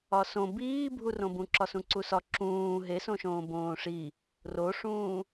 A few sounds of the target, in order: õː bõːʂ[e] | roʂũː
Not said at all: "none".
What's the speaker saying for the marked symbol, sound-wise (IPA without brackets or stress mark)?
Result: i